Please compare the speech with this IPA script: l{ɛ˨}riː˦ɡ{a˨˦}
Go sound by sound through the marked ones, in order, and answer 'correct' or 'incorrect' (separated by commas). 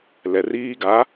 correct, correct